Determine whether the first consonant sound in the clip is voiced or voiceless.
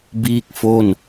voiced